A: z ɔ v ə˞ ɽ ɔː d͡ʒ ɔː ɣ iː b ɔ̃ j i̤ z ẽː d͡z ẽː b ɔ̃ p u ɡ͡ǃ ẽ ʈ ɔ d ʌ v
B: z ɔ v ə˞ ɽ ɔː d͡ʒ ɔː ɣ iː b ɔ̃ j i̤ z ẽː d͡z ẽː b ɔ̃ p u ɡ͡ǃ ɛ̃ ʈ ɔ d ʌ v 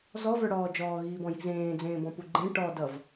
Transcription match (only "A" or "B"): A